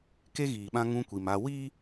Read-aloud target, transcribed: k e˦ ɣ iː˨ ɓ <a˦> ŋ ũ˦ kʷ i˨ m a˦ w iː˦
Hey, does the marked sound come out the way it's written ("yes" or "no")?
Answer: no